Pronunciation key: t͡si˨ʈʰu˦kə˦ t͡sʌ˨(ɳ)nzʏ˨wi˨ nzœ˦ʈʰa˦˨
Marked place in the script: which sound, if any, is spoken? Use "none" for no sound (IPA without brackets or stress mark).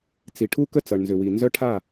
ɳ